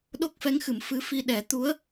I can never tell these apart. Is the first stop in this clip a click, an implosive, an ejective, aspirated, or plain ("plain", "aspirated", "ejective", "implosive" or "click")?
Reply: implosive